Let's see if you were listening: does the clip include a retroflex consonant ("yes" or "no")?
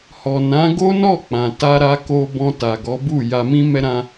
no